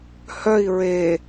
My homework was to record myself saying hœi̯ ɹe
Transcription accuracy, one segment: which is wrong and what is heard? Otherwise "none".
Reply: none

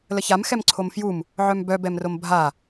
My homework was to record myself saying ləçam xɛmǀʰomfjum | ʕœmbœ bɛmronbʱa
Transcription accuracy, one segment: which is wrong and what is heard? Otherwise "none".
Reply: n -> m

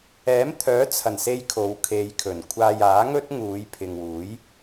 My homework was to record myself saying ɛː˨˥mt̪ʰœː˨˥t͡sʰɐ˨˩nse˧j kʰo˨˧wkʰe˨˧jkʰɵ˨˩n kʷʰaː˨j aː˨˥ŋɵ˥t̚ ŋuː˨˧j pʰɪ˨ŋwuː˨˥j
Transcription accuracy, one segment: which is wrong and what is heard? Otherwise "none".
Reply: none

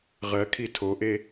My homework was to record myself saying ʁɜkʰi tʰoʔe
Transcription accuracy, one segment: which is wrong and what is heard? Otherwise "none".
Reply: none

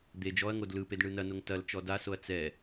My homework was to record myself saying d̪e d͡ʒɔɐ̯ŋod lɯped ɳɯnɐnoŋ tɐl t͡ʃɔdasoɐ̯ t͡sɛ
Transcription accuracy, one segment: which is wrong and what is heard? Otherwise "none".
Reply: none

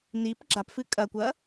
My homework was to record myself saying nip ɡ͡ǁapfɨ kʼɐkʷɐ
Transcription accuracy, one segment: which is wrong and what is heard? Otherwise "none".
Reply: none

